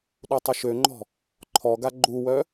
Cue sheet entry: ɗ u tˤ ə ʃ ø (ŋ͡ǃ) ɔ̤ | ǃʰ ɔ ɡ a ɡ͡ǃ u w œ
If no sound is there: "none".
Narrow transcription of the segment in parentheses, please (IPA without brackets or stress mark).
ŋ͡ǃ